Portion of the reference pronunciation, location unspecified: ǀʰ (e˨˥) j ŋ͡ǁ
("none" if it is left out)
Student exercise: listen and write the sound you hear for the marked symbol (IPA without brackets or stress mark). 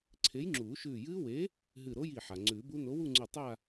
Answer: e˨˥